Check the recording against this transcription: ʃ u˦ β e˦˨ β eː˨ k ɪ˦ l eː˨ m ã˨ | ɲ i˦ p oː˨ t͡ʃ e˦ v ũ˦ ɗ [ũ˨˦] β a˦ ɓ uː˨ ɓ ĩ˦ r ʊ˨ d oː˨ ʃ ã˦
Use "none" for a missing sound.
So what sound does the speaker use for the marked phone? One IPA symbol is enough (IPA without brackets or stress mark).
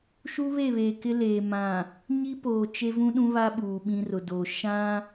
ũ˦